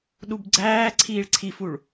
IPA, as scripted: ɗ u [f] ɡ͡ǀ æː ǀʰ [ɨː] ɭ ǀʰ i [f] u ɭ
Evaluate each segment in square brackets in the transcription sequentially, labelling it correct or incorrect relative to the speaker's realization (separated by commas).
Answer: incorrect, incorrect, correct